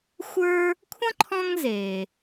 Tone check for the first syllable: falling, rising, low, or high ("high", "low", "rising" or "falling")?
high